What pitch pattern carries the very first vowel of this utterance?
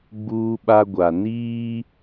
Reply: high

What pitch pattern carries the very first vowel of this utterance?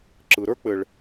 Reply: low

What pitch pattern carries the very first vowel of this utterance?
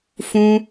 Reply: high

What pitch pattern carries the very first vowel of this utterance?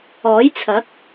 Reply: rising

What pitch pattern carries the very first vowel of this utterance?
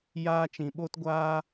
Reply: high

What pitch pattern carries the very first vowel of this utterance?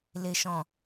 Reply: low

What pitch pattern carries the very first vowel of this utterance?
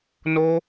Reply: high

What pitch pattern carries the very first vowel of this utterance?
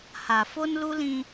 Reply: low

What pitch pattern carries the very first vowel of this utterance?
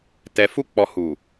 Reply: low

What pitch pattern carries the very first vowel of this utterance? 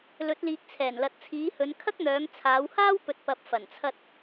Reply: rising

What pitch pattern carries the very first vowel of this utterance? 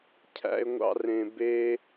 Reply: high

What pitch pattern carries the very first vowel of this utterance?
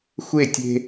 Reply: falling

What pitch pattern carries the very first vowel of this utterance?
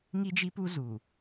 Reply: high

